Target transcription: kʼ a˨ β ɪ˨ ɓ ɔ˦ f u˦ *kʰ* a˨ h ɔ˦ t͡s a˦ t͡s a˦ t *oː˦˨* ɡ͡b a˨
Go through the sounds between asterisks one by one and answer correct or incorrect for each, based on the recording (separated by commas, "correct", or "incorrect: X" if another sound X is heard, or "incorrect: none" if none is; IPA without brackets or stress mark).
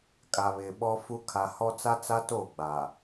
correct, correct